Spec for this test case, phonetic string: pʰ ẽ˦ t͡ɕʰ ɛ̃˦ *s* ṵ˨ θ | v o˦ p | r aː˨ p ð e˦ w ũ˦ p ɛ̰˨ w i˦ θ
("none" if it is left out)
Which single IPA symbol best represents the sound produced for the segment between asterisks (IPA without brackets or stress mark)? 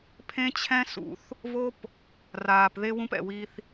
s